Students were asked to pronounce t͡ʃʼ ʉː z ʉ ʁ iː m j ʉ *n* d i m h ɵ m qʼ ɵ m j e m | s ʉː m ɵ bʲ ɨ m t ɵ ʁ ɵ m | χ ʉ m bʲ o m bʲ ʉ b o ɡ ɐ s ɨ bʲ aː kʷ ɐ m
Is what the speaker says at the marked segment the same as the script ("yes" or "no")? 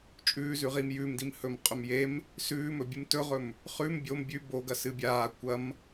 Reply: no